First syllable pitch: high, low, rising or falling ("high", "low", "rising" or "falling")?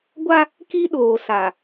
high